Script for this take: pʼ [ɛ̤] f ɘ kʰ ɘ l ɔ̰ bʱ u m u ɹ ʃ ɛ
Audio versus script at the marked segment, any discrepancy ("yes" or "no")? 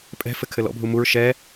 no